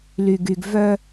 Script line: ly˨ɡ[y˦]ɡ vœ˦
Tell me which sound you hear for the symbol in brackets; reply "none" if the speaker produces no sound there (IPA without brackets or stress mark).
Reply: y˨